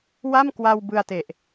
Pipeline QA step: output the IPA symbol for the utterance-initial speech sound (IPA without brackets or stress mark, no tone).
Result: w